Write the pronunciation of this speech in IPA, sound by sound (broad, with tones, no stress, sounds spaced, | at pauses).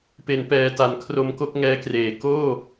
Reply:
p e˩˦ n p ɛː˨˩ t a˩˦ n kʰ r o˧ m k o˥˩ k̚ ŋ ɛː˦˥ k r eː˩˦ k oː˥˩